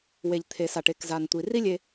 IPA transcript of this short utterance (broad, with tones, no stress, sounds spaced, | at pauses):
w e˩ ʎ t̪ʰ e˩ s a˩ ʈ e˩ k z a˩ n tʷ i˩ r i˥ lʲ e˧